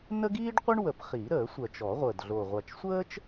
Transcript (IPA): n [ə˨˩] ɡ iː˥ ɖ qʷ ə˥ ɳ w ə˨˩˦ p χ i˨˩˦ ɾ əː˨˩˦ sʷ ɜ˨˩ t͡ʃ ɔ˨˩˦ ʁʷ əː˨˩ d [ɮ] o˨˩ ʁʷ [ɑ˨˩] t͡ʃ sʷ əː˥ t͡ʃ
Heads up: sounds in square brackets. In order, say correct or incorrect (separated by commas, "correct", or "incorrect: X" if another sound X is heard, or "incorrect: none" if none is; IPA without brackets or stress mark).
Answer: incorrect: ə˥, correct, incorrect: a˨˩